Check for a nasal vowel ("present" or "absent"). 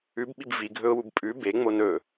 absent